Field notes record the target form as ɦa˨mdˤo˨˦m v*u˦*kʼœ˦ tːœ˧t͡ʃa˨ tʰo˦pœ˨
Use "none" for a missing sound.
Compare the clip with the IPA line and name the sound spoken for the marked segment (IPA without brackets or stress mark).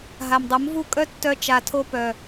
u˦